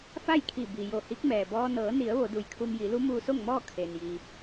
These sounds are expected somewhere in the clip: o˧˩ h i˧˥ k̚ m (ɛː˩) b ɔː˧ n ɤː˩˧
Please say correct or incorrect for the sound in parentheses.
correct